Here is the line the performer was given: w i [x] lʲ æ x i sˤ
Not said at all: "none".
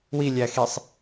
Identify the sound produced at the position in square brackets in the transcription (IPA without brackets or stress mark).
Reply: none